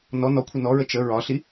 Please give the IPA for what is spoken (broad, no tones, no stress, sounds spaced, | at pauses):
n ɔ n ɔ kʷʰ ʌ n ɔ ɹ ə t͡ʃ ə ɹ ɒ ɬ i